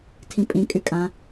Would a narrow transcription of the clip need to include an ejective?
yes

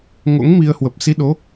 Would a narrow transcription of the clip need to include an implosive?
yes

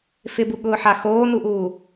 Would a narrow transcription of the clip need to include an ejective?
no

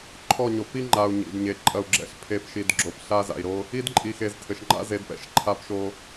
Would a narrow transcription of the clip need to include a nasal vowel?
no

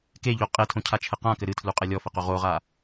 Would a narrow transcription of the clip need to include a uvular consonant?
yes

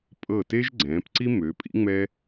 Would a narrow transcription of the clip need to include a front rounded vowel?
yes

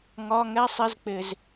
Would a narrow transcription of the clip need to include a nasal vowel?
no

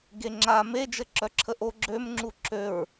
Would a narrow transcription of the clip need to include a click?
yes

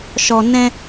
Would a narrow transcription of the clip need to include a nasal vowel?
yes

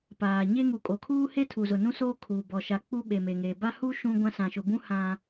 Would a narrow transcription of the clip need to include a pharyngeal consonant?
no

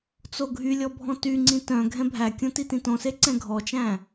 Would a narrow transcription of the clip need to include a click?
yes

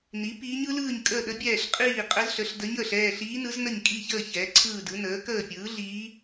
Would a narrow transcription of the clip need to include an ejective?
yes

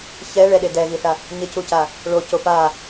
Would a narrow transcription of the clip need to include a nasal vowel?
no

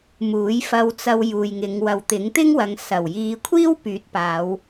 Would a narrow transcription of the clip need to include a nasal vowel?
no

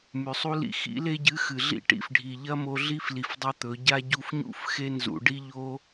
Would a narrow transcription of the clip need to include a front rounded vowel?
no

